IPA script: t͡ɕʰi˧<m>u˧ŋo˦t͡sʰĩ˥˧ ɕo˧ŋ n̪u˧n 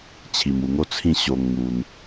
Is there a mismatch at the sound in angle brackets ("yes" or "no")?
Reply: no